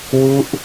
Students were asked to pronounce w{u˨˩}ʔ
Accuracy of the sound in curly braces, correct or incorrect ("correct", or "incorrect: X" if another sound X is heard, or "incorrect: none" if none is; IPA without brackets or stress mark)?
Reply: incorrect: u˦˥